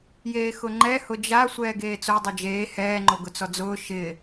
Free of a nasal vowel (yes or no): yes